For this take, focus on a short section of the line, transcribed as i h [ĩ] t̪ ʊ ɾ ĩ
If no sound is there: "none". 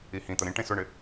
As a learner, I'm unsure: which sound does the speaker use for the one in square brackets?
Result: ĩ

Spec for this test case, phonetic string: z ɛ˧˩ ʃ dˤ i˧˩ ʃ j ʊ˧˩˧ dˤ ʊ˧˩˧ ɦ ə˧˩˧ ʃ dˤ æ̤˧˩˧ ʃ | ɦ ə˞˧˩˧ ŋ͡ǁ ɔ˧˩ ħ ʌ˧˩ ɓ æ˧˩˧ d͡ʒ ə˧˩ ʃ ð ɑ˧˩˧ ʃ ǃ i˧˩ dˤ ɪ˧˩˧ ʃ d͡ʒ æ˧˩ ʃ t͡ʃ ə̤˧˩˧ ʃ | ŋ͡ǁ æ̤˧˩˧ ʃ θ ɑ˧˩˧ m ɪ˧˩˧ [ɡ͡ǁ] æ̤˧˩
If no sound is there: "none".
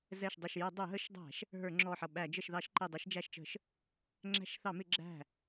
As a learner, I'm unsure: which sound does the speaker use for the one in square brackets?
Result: ɡ͡ǁ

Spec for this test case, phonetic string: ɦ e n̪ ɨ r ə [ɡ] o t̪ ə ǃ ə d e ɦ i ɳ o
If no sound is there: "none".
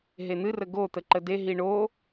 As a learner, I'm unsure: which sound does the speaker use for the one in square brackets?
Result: ɡ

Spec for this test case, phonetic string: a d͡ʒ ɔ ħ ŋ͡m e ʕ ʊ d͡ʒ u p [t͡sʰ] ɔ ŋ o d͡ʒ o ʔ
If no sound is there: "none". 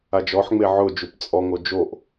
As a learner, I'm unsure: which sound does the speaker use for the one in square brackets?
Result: t͡sʼ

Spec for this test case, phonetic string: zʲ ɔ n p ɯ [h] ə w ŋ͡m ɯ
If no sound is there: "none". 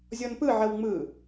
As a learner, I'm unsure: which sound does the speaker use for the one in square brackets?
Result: ʕ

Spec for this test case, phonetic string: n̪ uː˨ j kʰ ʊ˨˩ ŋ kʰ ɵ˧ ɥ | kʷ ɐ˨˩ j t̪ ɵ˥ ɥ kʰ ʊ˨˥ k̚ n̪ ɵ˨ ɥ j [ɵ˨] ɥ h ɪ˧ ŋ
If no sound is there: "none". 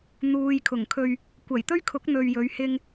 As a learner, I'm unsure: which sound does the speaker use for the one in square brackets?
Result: ɵ˨˧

